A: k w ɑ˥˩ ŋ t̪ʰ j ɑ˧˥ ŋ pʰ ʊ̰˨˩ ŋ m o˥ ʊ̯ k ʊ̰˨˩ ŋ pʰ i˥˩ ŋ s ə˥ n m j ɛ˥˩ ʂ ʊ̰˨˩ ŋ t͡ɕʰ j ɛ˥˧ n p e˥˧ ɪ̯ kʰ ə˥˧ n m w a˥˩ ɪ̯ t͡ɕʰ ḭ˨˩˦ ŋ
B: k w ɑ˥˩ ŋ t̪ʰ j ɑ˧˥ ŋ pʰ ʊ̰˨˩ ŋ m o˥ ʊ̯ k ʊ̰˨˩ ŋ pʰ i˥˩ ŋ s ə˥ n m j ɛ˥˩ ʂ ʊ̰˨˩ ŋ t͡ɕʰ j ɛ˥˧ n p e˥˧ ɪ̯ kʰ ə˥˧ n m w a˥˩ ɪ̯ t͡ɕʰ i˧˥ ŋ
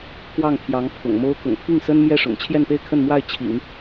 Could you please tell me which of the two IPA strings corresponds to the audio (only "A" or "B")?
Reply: A